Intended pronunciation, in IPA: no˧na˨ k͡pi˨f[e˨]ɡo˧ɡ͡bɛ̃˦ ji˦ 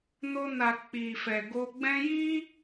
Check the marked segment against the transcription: incorrect: ɛ˨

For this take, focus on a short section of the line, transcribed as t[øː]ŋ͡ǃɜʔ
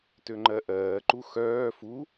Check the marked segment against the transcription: incorrect: ø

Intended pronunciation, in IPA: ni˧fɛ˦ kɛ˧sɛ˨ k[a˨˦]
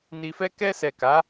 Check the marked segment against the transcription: correct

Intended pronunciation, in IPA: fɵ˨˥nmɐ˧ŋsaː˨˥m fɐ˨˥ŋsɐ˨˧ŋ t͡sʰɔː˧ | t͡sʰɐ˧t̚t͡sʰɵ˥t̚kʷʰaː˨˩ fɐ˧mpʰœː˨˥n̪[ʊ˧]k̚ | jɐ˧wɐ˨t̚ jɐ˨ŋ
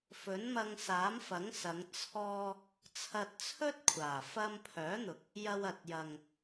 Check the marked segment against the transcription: incorrect: ʊ˨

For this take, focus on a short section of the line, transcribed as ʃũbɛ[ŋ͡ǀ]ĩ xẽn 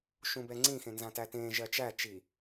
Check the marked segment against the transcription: correct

